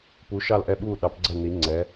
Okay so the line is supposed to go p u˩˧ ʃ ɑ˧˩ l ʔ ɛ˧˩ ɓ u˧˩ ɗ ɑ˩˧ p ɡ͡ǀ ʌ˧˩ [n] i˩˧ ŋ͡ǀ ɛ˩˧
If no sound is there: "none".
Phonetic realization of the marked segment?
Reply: n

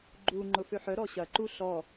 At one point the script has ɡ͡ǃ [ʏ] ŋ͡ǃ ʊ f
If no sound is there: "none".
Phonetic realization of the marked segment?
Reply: u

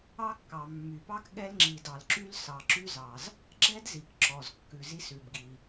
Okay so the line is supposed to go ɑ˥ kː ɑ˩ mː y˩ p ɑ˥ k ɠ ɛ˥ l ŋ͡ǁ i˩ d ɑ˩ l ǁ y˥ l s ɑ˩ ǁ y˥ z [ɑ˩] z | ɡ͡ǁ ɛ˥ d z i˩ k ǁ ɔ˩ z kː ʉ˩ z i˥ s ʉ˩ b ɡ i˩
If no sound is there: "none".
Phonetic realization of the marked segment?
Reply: ɑ˩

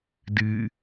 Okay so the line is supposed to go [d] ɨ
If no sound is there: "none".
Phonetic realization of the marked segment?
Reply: d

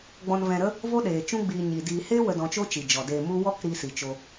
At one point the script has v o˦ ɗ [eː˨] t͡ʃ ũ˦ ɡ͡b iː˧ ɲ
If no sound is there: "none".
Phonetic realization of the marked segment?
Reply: eː˨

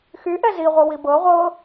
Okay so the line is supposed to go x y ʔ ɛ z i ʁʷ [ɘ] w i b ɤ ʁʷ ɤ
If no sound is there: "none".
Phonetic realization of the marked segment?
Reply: ɘ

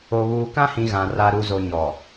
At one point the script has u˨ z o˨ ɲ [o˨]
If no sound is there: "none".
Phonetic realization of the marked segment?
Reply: ɔ˨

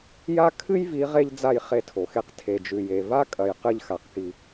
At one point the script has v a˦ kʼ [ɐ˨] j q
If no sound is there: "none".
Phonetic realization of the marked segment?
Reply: ɐ˨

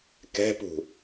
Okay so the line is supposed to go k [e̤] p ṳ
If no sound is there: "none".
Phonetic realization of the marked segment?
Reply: ɛ̤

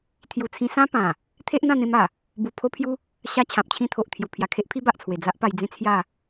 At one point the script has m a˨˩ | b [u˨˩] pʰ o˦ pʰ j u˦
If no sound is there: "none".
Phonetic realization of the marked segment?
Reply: u˨˩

